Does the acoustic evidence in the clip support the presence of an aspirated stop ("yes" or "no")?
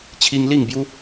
yes